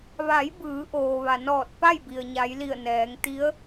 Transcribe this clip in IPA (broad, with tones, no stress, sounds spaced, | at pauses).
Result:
ʋ a˩˧ j b ɯː˩˧ ʔ oː˩ ʋ a˩ n ɔː˧˩ t̚ p a˥˨ j b i˩ ə̯ ɲ a˩˧ j l i˧˩ ə̯ n ɛː˩˧ ŋ t̪ i˧˥ ə̯